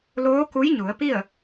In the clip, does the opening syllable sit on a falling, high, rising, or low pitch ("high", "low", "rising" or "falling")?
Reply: rising